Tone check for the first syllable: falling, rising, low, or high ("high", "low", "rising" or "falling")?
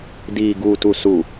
low